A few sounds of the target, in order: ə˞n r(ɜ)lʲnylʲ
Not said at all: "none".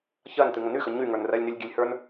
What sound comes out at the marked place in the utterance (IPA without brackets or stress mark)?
ɜ